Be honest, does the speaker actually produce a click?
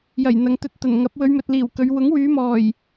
no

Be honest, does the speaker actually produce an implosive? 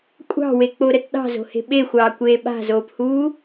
yes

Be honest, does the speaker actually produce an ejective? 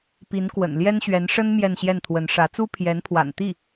no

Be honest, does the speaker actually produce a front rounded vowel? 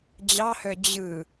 yes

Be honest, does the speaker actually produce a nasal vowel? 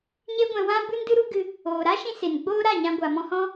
yes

